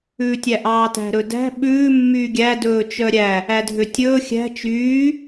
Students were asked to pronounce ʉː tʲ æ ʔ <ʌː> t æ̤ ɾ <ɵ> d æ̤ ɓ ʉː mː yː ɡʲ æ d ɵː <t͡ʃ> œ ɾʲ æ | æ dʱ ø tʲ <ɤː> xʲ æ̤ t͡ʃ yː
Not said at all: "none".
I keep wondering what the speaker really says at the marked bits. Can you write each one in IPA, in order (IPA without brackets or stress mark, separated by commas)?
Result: ɑː, ɵ, t͡ʃ, ɵː